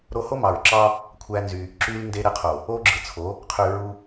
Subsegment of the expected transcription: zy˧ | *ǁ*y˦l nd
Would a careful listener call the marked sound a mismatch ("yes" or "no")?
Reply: no